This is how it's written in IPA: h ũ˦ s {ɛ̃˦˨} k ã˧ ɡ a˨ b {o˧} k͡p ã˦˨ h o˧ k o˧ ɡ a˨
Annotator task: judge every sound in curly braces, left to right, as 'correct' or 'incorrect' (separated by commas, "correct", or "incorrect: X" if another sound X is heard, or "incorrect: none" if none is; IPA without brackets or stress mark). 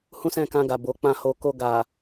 correct, incorrect: o˨˦